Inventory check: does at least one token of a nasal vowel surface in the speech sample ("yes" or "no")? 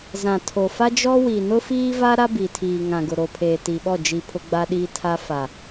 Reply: yes